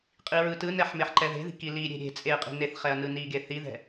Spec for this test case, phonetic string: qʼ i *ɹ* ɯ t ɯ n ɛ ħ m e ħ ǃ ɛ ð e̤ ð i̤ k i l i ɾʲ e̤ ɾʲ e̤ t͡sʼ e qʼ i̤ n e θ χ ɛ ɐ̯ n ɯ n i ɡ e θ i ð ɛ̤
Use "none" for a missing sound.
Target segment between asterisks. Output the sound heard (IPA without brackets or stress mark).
ɹ